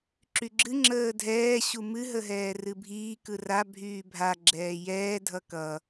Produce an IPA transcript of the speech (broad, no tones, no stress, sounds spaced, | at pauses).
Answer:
ǁ y ɡ͡ǁ ɨ ŋ͡ǁ əː dʱ ɛː ɕ u m ɨ ɦ ə ɦ ɛː r ɨ bʱ iː k ɯ r a bʱ yː bʱ a ɡ͡ǁ ɛː j ɛː dʱ ʌ k ʌ